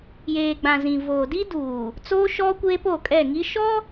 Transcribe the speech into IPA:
j eː˨ ɡ͡b ã˨ z ĩ˨ v oː˨ d i˦ d uː˨ | t͡s oː˦ ʃ ɔ˦ kʷ eː˦ p o˦˨ kʼ ɛ˦˨ ŋ i˦ ʃ ɔ˦

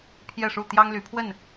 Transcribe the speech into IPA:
pʰ j ɛ˥˨ ʂ u˥˨ t̪ j ɑ˦ ŋ l y˨˦ pʰ w ə˥˨ n

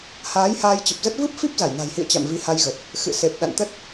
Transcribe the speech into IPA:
h aː˨˦ j h aː˧ j t͡ɕ ə˨˩ p̚ z ə˦˥ t̚ v ɨ˦˥ p̚ f i˦˥ p̚ z a˧˩ j n a̤˨˩ j h ḭ˧˨ ə̯ t͡ɕ a̰˧˨ m v i˨˦ h a˧ j ɣ ə˨˩ t̚ | x ɨ̰˧˨ s e˨˩ p̚ ɗ a̰˧˨ n t̪ ə˦˥ t̚

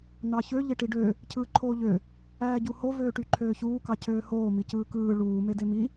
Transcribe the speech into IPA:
n̪ ɑ ç ø ʎ e ʈ i ɖ ø | cʰ ɯː ǃʰ oː ʎ ø | æː ɟ u h o v øː ʈ y ǃʰ øː ç uː k ɑ cʰ øː h oː m i c ɯː k ɯː ɭ uː m e d e m i

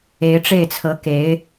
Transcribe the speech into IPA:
e˧˥ ɪ̯ ʈ͡ʂ e˥˩ ɪ̯ t͡sʰ ɤ˧˥ k e˧˥ ɪ̯

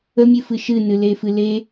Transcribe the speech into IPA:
ə mʲ ɨ f ɨ ʃ ɨ n ɨ l e f ɨ l e

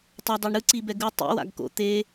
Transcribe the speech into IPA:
tˤ ʌ dˤ ɛ ɳ ɾ ɯ ǀ i b ɛ ɡ ɯ tˤ ḭ w a̰ ɡ k o̰ t̪ e

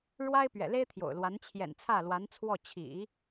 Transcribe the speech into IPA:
ɻ w a˥ ɪ̯ p ɥ ɛ̰˨˩ l e˥ ɪ̯ t̪ʰ j o̰˨˩ ʊ̯ l w a˧˥ n t͡ɕʰ j ɛ̰˨˩ n t͡sʰ ä˥˩ l w a˧˥ n t͡sʰ w ɔ˥˩ t͡ɕʰ ḭ˨˩˦

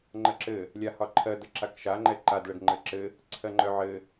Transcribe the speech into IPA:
ŋ͡ǃ ɜ ǁ ɘ | lʲ a h ɒ ǃʰ ɜ d ə ǁ a k ʃ a ŋ͡ǃ ɛ ǃ a d ɭ ə d ŋ͡ǃ ɘ ǁ ɘ | ǀʰ ɜ ŋ͡ǃ œ ʕ ɘ

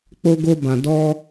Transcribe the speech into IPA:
k͡p o˧ ɡ o˧ b ã˨ d ɔ˧

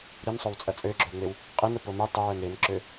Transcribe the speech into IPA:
ɾ i n sˤ o w t͡sʼ ɐ t͡sʼ ø ɡ͡ǁ ʏ w ŋ͡m e w | qʼ i n ɾ ʊ p o m i tˤ ɪ w œ n ɾ ɪ n ǁ ø

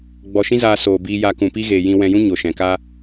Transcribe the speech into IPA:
ɡ͡b ɔ˧ ʃ ĩ˦ z aː˧ s oː˨ b iː˧ j a˧ k ũ˨ p i˦ ɣ eː˨ j ĩ˧ w ɛ̃˧ j ũ˦ ɲ o˨ ʃ ɛ̃˨ k a˦

